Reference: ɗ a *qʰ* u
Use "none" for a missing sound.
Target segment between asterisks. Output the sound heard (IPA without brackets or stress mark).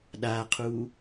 qʰ